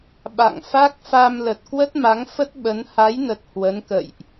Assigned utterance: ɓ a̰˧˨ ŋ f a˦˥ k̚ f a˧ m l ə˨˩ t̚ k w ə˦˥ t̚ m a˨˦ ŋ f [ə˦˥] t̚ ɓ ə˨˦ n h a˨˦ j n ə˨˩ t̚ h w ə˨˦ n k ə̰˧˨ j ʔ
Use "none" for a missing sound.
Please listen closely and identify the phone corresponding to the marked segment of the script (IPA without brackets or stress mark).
ə˦˥